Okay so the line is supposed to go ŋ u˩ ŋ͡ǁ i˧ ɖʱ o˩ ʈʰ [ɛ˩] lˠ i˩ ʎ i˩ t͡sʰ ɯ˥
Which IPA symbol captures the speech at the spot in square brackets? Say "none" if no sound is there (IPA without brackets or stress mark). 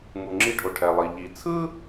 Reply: ɛ˩